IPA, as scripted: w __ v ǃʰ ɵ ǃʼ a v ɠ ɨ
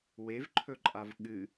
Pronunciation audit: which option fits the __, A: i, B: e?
B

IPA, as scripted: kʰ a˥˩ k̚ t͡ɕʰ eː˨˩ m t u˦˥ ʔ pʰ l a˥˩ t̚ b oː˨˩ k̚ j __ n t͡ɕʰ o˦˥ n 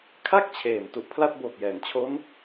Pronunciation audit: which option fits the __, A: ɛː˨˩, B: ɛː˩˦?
B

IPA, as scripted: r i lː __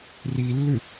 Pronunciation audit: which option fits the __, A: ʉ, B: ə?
A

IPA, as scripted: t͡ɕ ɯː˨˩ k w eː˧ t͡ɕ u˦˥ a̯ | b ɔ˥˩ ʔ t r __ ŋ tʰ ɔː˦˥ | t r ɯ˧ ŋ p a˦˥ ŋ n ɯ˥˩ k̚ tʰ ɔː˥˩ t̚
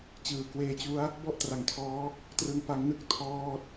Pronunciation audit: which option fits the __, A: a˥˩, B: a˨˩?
B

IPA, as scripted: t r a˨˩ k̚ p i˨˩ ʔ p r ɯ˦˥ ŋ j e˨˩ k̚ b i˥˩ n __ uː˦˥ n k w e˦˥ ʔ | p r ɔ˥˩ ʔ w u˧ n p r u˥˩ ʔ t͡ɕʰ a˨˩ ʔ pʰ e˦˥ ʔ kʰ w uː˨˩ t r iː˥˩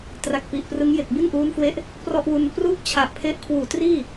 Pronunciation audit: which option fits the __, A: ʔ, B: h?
A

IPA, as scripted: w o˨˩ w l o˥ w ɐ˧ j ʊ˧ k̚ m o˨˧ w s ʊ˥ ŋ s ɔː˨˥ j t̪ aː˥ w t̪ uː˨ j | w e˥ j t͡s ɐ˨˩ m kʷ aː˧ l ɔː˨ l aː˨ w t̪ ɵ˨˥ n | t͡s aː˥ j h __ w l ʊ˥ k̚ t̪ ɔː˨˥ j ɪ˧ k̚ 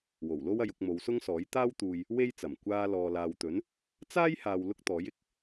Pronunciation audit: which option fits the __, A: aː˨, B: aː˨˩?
A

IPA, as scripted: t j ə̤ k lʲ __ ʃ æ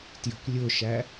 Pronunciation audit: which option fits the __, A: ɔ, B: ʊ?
B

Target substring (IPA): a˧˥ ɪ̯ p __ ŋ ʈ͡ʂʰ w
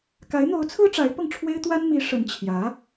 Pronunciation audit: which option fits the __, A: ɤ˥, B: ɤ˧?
B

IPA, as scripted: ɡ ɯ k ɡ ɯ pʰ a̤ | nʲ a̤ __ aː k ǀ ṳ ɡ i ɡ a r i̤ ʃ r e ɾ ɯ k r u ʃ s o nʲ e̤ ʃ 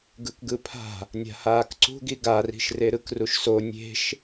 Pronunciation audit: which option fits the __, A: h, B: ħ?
A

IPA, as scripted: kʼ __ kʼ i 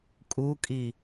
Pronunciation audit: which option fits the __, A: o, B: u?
B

